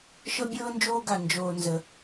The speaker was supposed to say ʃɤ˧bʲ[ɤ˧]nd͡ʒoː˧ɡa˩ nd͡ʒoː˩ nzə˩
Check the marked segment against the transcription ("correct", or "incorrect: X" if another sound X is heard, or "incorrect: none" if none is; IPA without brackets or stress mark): incorrect: ɤː˧